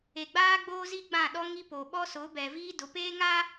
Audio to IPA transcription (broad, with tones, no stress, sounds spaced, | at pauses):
e˨ ɡ͡b aː˦ ɡ͡b oː˦ z i˦ ɡ͡b ã˦˨ ɗ ɔ˦ ŋ i˦ p o˨ ɓ ɔ˦ s ʊ˨˦ b ɛ˨ v iː˦ d ʊ˨˦ p eː˦ ŋ a˦